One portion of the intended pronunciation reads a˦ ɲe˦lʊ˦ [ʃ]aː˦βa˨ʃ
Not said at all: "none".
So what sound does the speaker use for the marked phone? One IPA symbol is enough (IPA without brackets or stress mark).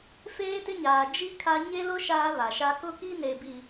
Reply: ʃ